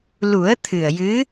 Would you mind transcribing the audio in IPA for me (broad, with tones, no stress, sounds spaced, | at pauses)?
l u˨˩˦ ə̯ t̪ʰ ɨ˨˩ ə̯ j ɨ˧˥